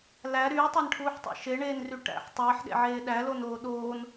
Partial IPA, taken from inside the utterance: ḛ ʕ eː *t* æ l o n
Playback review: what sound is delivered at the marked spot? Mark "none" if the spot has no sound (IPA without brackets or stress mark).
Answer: ɗ